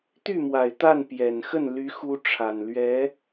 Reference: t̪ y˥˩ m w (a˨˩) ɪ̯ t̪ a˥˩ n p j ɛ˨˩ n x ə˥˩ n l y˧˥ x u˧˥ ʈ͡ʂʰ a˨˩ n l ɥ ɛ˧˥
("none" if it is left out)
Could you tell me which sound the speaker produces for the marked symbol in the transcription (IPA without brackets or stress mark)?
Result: a˨˩